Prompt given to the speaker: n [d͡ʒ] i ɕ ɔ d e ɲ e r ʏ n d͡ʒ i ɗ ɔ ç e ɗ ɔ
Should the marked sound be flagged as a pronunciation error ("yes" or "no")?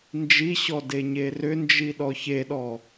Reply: no